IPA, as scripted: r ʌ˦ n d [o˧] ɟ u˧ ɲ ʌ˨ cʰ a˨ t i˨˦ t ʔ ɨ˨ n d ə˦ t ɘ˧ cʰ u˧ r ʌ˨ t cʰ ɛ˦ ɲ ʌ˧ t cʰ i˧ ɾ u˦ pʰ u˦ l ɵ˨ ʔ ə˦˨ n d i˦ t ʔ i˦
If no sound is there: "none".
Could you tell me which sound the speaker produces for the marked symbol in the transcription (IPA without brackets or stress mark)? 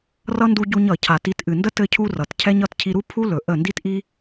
u˧